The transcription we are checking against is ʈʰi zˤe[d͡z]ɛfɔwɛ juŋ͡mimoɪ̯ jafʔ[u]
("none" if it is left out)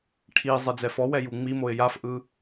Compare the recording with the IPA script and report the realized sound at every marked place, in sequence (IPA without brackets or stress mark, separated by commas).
d͡z, ɯ